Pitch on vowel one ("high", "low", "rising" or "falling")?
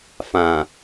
low